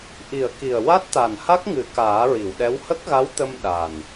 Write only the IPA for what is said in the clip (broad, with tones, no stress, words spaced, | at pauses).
ʔi˨˩˨ə̯ ki˨˩ə̯ wa˦˥t̚t̪a˨˩nha˦˥k̚ŋɨ˨˩˦ kaː˨˩˦ɹi˨˩˨wɗɛ˧˥w hə˦˥k̚ɣa˧˥wt̪ə˧m ɗa˨˩n